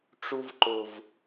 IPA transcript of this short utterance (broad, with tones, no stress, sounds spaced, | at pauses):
ʈ͡ʂ u˧ v ǃ ʊ˨ v